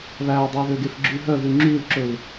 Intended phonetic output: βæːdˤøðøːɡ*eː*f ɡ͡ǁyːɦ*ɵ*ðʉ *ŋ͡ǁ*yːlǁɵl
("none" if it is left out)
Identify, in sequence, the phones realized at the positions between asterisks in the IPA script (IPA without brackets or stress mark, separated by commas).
e, œ, ŋ͡ǁ